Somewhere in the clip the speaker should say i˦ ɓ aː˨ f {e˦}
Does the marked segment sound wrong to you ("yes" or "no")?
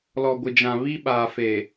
yes